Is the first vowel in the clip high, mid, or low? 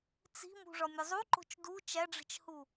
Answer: high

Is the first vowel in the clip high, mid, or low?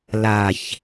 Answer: low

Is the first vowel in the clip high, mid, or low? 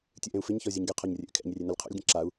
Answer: high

